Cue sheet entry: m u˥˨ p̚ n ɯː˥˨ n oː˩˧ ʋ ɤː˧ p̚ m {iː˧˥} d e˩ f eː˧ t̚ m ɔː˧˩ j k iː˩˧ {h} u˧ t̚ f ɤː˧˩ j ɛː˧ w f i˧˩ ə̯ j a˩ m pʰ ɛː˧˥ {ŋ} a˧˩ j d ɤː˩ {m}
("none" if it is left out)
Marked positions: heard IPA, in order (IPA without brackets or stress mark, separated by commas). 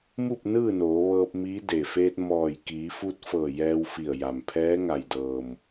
iː˧˥, f, ŋ, m